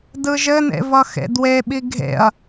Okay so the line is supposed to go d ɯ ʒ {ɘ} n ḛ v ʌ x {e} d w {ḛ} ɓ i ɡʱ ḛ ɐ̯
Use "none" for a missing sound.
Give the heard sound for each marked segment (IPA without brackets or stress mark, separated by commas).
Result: ɘ, ḛ, e